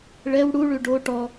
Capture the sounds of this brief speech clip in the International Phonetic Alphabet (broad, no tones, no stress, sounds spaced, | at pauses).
ɭ ɛ w ɽ u ɭ ʉ ɖ o ʈ ɔ